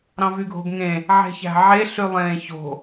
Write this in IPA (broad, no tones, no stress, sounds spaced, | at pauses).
ɾ ɑ̃ v y ɡʱ o̤ ɡ ŋ ẽ | ʕ e̤ ç æ̤ ʕ e ɬ y lˠ ẽː ç o̤